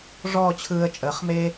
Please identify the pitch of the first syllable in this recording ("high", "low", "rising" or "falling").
falling